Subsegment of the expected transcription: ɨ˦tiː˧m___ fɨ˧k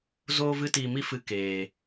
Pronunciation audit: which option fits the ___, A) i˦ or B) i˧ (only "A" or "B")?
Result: A